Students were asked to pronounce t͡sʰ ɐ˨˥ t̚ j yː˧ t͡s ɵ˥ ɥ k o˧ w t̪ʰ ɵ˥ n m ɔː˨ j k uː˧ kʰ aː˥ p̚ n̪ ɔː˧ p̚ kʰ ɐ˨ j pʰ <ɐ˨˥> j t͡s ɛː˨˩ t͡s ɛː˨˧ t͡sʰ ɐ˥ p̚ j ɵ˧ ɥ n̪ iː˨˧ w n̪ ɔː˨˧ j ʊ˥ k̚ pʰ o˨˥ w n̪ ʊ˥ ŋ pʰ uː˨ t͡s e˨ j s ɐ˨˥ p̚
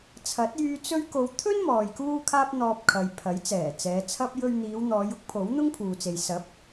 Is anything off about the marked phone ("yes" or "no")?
no